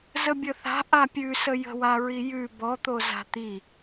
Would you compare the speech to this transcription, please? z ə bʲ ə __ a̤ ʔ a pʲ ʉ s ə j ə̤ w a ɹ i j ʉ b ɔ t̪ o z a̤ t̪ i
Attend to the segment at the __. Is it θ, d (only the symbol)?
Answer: θ